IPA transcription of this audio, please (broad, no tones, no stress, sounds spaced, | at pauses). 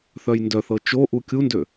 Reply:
θ œ j n d œ θ ɤ t͡ʃ o ʔ u kʲ u n d ø